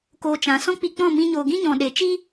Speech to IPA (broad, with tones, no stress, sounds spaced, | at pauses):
k oː˧ t͡ʃ ã˨˦ s ɔ̃˦ k͡p i˧ k͡p ɔ̃˦˨ m ĩ˧ ɲ oː˨ ɡ ĩ˦ ɲ ɔ̃˨ ɗ e˨ t͡ʃ i˦